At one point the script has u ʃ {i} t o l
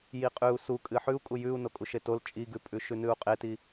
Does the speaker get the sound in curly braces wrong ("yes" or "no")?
yes